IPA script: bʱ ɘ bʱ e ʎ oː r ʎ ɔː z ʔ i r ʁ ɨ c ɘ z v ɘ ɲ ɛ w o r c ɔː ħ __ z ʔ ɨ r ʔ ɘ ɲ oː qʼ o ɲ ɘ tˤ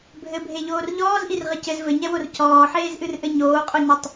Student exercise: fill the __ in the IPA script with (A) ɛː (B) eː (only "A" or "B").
B